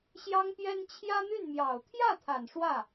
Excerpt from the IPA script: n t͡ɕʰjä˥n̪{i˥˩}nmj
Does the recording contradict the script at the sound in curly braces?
yes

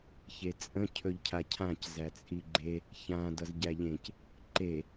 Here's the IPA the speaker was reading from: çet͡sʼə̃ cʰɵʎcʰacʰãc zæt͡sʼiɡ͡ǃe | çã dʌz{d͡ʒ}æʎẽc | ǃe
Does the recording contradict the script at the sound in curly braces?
yes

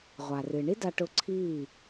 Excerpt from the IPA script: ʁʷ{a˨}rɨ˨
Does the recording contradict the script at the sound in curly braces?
no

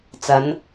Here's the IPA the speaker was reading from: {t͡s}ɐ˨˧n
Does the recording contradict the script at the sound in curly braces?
no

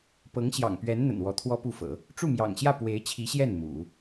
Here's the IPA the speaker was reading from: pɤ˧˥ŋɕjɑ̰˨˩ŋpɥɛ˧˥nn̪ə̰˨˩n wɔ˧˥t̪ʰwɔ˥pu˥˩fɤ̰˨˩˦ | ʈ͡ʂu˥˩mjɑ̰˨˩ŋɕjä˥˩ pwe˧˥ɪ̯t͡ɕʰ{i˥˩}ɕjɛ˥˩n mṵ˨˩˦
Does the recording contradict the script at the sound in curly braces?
yes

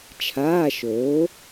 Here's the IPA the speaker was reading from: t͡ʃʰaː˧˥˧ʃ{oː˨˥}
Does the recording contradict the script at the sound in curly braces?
no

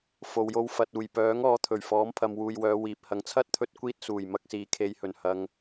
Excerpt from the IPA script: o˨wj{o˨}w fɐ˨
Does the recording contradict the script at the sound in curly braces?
yes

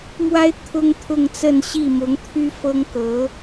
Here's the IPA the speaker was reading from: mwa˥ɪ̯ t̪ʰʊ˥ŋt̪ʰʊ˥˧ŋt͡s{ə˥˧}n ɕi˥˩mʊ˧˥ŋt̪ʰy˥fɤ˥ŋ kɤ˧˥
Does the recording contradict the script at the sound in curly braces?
no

